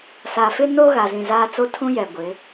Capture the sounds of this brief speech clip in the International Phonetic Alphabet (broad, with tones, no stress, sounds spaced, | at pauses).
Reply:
s a˨ f ɪ˦ n o˦ ɣ a˨ z ĩ˨ z aː˦ t͡s o˦ tʰ ũ˦ j ɛ˨ ɡʷ ɪ˨˦